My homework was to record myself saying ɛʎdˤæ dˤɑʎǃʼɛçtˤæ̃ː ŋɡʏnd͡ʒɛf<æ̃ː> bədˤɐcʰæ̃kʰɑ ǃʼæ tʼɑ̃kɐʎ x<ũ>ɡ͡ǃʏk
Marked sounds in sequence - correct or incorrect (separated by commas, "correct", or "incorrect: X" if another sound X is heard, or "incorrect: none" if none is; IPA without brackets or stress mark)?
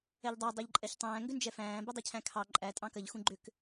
correct, correct